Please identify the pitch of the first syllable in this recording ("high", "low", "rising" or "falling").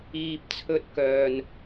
low